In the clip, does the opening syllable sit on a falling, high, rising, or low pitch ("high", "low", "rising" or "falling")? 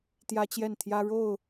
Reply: high